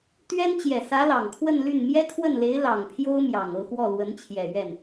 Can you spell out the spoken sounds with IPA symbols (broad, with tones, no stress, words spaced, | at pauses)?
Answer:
t̪ɥɛ˥n t͡ɕjɛ˨˩sä˧˥ lɑ˨˩ŋkʰwə˥˧nly˥˩n mjɛ˥kʰwə˥˩nle˧˥ɪ̯ lɑ˨˩ŋpʰjo˥ʊ̯ mjɑ˨˩ŋ ɤ˥˧xwɔ˥˩ lwə˧˥nt͡ɕʰjɛ˨˩ ɥɛ˥˩n